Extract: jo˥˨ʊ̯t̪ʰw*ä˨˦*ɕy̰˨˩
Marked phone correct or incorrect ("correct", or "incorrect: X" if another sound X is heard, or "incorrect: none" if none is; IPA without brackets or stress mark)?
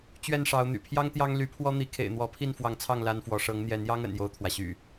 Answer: incorrect: ä˩